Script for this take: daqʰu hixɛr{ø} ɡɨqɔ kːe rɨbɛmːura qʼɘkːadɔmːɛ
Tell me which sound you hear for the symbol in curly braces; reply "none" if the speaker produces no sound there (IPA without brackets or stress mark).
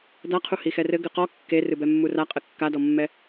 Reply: ɘ